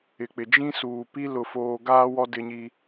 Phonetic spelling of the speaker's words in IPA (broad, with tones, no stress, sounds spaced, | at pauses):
ɪ˨ k͡p ɪ˨ d͡ʒ ĩ˦ s uː˨ p i˦ l ʊ˦ f oː˦ ɡ aː˦ w ɔ˦ d ɪ˦ ɲ i˦